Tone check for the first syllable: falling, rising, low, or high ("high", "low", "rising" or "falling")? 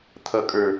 low